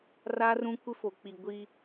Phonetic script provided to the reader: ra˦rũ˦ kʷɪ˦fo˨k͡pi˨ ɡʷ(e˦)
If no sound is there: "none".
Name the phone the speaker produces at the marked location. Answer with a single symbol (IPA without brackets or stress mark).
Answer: i˦